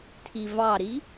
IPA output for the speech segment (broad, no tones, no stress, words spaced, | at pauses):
tʰivɑɾi